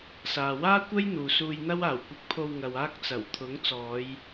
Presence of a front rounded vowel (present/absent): absent